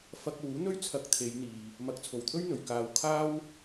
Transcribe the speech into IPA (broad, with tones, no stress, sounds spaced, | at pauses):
f ɐ˧ k̚ w uː˨˥ n̪ ɵ˥ ɥ t͡sʰ ɐ˧ k̚ t̪ʰ e˨˧ j n̪ iː˨ | m ɐ˨˥ k̚ t͡sʰ o˨˩ w t̪ʰ ɵ˥ ɥ n̪ ɵ˨ ɥ k aː˧ w kʰ aː˥ w